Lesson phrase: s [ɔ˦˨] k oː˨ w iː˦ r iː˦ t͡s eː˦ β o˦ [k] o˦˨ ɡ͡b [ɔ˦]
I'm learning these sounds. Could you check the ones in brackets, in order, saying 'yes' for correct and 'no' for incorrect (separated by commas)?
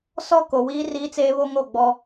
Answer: yes, no, yes